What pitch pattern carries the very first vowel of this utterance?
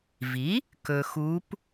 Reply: rising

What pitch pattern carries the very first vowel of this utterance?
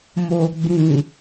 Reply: low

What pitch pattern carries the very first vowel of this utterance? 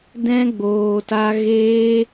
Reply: high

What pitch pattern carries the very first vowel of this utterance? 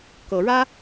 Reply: rising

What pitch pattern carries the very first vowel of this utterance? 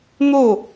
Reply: falling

